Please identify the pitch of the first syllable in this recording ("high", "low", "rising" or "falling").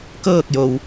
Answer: falling